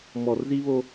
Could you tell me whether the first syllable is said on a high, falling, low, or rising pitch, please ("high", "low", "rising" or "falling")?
low